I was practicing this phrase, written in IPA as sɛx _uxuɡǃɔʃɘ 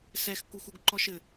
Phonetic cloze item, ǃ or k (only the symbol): k